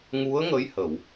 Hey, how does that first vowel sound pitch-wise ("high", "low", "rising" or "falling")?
rising